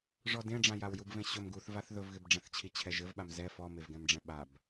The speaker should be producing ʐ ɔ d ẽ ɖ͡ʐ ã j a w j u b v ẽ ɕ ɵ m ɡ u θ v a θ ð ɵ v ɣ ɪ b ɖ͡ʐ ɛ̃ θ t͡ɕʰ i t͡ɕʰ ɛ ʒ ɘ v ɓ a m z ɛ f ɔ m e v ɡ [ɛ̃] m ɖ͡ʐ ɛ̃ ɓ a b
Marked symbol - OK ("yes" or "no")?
yes